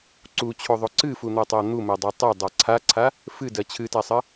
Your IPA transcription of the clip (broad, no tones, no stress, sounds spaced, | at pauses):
ǀ u t͡ɕʰ o ðˤ o ǀ ɨ f u n̪ ɜ tˤ ɜ n̪ u m ɜ dˤ æ tˤ ɜ dˤ a ǀʰ a ǀʰ a | f ɨ d ɜ t͡ɕʰ ɨ t a sˤ ɜ